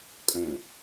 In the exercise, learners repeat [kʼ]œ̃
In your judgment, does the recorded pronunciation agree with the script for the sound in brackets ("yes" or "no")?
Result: yes